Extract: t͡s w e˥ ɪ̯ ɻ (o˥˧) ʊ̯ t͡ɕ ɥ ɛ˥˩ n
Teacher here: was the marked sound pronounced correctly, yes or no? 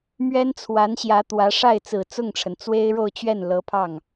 yes